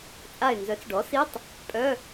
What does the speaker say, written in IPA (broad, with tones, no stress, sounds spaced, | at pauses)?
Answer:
t͡sʼ a˧˩ ɪ̯ n z œ˩˥ t͡s ɖ ɔ˩˥ s i˧˥˧ tˤ | pʼ œ˧˥˧